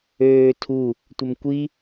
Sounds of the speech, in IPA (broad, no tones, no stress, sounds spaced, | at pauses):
øː tʰ u | tʷ ə m kʷ i